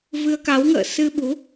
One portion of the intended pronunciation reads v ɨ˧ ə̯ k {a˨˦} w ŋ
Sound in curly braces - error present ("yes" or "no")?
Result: no